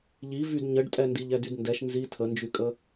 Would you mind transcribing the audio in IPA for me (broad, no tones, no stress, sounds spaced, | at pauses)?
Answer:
ʎ i v y d ɲ ə ɖ tʼ ɛ n d i ʎ ɛ d y d n d ɛ ʃ n z i tʰ ə n d͡ʒ y kʼ ə